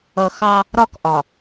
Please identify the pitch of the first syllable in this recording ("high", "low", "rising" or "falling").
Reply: low